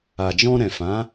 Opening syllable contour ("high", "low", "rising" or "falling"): low